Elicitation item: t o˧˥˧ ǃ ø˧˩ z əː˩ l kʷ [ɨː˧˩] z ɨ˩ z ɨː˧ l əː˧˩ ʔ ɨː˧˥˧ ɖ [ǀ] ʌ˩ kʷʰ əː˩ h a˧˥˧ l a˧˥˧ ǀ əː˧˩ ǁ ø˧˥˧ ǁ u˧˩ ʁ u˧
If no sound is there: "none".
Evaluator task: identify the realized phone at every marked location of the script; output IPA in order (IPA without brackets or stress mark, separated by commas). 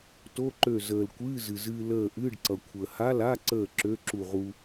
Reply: ɨː˧˥˧, ǀ